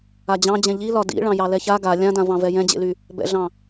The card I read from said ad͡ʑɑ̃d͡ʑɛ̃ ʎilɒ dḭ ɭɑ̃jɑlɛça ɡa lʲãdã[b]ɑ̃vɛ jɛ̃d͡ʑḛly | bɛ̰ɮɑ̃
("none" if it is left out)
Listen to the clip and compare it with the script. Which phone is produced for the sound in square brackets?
v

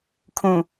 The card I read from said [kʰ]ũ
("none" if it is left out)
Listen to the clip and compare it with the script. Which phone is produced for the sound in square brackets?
kʰ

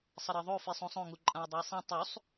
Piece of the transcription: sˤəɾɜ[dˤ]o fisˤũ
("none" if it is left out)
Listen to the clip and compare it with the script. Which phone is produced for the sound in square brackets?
ðˤ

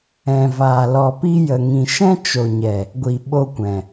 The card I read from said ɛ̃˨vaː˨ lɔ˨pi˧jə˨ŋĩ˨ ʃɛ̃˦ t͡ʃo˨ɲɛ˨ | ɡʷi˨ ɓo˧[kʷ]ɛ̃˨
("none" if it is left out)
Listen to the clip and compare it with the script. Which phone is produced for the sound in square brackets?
kʷ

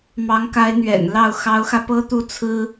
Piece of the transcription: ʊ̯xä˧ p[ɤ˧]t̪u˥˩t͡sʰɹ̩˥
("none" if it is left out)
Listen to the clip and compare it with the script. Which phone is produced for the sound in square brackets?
ɤ˥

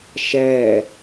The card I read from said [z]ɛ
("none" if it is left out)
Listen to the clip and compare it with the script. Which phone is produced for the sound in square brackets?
ʃ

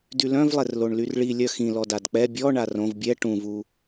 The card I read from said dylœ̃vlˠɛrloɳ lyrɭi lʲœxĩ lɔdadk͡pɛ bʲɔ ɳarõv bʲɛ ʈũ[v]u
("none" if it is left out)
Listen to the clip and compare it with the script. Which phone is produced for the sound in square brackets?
v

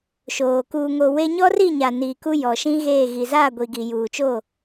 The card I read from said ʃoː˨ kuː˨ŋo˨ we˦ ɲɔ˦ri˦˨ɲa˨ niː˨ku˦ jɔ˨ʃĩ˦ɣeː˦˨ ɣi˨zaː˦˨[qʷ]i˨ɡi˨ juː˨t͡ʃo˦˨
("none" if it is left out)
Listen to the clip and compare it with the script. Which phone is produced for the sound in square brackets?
ɡʷ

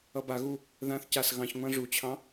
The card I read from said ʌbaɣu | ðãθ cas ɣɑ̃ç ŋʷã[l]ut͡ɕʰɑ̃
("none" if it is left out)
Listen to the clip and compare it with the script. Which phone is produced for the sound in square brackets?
ʐ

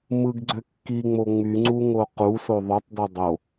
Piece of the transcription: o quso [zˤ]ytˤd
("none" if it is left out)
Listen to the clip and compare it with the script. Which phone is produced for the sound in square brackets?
ðˤ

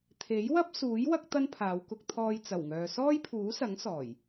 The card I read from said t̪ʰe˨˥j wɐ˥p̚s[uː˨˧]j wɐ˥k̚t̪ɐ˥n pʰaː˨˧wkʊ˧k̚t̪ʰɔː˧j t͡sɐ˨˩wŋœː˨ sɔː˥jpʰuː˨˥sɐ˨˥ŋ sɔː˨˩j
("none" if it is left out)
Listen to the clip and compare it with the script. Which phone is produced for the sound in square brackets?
uː˨˥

